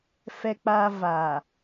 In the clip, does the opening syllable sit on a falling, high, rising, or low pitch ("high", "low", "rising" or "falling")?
high